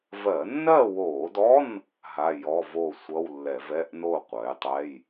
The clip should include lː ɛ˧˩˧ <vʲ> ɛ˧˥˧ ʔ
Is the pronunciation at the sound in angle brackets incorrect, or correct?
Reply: incorrect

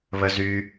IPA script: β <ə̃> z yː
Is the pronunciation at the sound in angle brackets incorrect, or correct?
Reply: incorrect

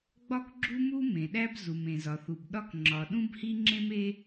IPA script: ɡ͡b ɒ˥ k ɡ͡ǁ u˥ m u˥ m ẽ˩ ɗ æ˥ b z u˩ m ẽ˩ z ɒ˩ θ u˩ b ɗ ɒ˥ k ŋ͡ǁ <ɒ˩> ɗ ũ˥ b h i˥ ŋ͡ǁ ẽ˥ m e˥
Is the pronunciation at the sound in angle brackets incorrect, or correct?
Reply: correct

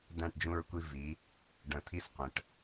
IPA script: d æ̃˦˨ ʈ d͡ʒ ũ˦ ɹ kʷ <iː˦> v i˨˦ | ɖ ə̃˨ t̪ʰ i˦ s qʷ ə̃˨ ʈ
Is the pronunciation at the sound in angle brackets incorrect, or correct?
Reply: incorrect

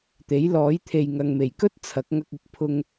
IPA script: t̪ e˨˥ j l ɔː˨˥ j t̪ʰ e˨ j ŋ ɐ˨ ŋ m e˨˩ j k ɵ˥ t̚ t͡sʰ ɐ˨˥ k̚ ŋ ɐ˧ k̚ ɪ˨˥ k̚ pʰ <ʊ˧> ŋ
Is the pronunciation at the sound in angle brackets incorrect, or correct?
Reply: correct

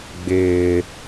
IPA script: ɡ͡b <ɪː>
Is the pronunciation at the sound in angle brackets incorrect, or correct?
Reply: correct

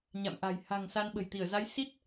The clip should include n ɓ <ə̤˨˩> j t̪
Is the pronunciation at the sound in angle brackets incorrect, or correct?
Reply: correct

